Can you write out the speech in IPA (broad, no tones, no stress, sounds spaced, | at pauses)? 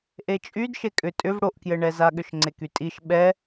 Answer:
ʔ e t͡ʃʼ y d ʃ e kʼ ʏ tʼ ʏ v ɽ o ʔ k j ɘ ɳ ɛ z a ɠ ʏ ʃ ŋ͡ǀ e k y tʼ i ʃ ɓ ɛ